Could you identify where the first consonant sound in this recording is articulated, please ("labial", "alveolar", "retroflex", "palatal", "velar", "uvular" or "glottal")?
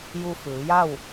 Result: palatal